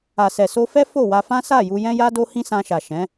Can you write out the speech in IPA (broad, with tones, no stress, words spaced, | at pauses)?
a˨sɛ˨ so˧fɛ˦ fo˦˨wa˧fã˦ sa˦˨ ju˧jɛ̃˦ja˦do˦ hĩ˦sã˧ʃa˨ ʃɛ̃˨˦